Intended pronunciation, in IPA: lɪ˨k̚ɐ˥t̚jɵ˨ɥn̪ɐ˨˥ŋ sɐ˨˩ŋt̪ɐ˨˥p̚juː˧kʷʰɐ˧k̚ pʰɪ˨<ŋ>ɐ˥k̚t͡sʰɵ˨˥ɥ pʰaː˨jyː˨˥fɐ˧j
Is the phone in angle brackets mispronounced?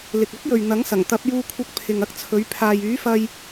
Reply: no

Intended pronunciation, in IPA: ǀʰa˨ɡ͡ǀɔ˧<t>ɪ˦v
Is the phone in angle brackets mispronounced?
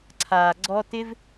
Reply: no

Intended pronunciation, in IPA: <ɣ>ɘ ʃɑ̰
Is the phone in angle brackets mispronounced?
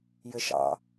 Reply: yes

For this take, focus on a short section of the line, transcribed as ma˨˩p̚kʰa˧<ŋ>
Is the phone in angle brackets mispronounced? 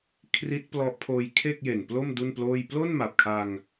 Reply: no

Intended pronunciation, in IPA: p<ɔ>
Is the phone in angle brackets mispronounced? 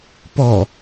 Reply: no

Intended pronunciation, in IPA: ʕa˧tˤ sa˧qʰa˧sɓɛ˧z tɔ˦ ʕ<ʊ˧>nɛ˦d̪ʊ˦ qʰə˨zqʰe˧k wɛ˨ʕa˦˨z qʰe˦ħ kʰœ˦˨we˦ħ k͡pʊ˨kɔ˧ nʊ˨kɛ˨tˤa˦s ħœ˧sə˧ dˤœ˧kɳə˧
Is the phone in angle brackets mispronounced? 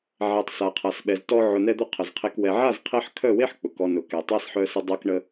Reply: no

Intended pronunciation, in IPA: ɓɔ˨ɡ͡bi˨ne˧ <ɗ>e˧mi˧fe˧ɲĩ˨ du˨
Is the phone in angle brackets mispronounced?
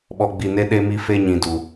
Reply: no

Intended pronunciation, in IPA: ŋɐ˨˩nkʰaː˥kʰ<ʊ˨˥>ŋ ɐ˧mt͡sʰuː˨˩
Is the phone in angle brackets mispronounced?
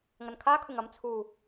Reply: yes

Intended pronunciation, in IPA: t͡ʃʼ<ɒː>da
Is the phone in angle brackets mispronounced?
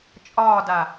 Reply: no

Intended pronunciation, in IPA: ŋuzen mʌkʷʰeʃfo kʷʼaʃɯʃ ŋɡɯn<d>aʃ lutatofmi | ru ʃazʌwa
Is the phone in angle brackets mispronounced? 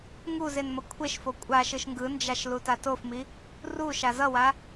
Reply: yes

